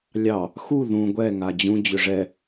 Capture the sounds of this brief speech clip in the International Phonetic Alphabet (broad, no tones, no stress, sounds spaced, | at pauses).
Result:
lʲ ɑ | x u ð ũ ɡʷ ɛ ŋ a d͡ʑ ũ d͡ʑ ʏ ʐ ɛ